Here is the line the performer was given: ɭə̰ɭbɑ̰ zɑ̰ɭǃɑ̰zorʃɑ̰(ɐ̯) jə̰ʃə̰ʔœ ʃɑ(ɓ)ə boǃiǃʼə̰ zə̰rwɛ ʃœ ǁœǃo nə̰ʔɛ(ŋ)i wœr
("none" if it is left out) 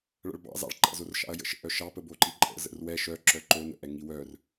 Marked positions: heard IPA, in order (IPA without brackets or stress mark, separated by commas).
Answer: ɐ̯, p, ŋ